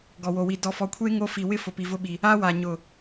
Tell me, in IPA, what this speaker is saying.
ɡ ɔ˨ w o˨ w i˨ d ɔ˨ f ɔ˨ kʷʰ e˦ ŋ o˦ f i˨ w ɪ˦ f ʊ˨ p i˨ v ʊ˦ ɓ i˨ | a˦ w a˨ ɲ ʊ˨

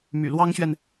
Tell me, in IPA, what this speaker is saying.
m y̰˨˩ l w ɑ˥ ŋ ɕ ɥ ɛ˨ n

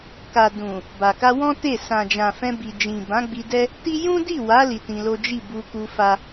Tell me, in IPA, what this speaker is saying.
k a˨ d ũ˨ | b a˨ k a˧ w ɔ̃˦ t e˦˨ s ã˨ d͡ʒ ã˨ f ɛ̃˧ b i˨ d͡ʒ ĩ˨ b ã˨˦ ɡ͡b i˧ d ɛ˦ | t i˦ j ũ˦ d i˦˨ w a˨˦ l i˧ t ĩ˧ l o˦ d͡ʒ i˦˨ b u˧ k u˧ f a˦

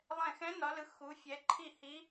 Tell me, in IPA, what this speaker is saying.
lˠ ɛ̃˧˩ x ɛ̃˧˥ n ɒ˩˧ l ɯ˩˧ x u˩˧ fʲ ɛ˩˧ ǃʰ i˧˩ h i˧˥

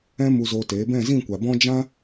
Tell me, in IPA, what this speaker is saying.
ɛ̃˧ m u˧ z oː˧ t eː˨˦ b ɛ̃˦˨ z ĩ˦˨ kʷ a˨ b ɔ̃˦ d͡ʒ ã˦

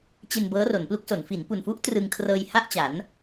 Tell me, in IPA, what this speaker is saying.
t͡ɕ e˧ n b ɤː˦˥ r o˩˦ n p l u˦˥ k̚ s o˩˦ n f i˩˦ n p u˨˩ n f u˦˥ ʔ t r ɯ˧ ŋ kʰ r ɤː˧ j h a˥˩ ʔ t͡ɕ a˩˦ n

